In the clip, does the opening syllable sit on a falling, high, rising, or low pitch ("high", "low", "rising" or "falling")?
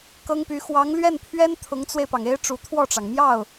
high